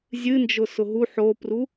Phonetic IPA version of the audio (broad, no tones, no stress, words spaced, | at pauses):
zʲɨnd͡ʒʊ sʊɦu ħopru